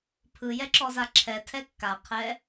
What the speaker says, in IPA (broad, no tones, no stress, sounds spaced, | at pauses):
pʰ ɯ j ɛ ǁ ɔ z a ǁʰ ɛ tʰ ɛ kː a qʰ ɛ